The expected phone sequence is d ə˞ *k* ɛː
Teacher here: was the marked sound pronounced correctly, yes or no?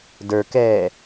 yes